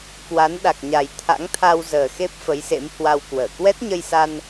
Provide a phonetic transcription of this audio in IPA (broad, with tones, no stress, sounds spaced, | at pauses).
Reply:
k w a˨˦ n ɗ a˨˩ k̚ ɲ a˨˩ j t̪ʰ a̰˧˥ ŋ t̪ʰ a˧ w z əː˨˩ x e˦˥ p̚ f ə˨˦ j s ḛ˧˥ m h w a˧ w k w əː˧˩ k w ɛ˦˥ t̚ ɲ ə˧ j s a˧ n